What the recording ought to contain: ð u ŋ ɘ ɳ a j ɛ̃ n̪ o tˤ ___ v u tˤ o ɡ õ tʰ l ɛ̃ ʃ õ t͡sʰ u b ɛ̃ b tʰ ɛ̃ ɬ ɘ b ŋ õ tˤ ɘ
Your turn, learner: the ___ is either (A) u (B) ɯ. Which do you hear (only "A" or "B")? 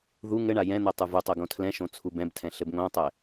A